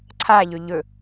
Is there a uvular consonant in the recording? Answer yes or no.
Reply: no